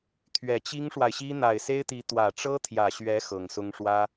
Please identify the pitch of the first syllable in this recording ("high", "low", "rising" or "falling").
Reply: low